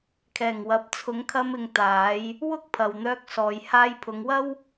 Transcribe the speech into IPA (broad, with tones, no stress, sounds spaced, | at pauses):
kʰ ɛː˨˩ ŋ w ɐ˨ p̚ t͡sʰ ʊ˨˧ ŋ kʰ ɐ˧ m ɪ˨ ŋ t̪ aː˨˧ j | w ʊ˥ k̚ pʰ ɐ˨ w n̪ œː˧ k̚ s ɔː˨ j h aː˧ j pʰ ʊ˨˧ ŋ w ɐ˥ w